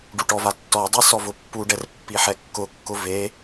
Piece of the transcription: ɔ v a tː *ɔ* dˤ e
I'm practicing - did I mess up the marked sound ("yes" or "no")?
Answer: no